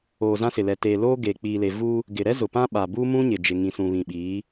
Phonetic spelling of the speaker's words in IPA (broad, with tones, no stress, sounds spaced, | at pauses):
oː˨ z ã˦ s ɪ˨ l ɛ˨ t eː˨ l oː˦ ɡ eː˨ k͡p iː˨ l e˨ v u˦ | ɡ ɪ˨ ɾ ɛ˦ z ʊ˨ p ã˦ ɓ a˨ b uː˦ m ũ˦ ɲ ɪ˨ d͡ʒ ɪ˨ ŋ ĩ˨ s ũ˨ β ĩ˨ ɓ iː˨˦